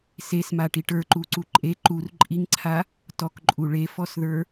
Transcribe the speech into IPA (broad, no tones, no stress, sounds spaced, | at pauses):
s e s m a ʈ i ʈ ə˞ ǃ u ǀ u ǃʼ e ǃ u r ǃʼ i ŋ ǀʰ a | t ɔ k ǃʼ u ɭ e f ɔ s ð ə˞